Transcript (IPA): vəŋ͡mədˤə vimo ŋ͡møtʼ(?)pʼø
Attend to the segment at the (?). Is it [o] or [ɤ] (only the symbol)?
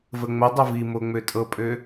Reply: ɤ